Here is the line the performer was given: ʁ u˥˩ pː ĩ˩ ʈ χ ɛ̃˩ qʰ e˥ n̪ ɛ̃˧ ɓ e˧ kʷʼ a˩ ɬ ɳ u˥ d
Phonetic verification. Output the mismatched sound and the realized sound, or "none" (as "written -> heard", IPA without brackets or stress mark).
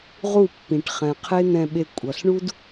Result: a˩ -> ʌ˩